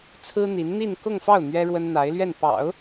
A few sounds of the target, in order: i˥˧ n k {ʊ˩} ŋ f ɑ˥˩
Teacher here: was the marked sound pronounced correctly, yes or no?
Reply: no